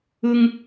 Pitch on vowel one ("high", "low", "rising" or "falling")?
high